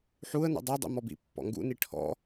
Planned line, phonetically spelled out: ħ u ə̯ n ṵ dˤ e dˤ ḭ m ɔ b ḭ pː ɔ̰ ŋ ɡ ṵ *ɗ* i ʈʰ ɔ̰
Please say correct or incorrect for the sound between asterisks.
incorrect